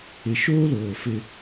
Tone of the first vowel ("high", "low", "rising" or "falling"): low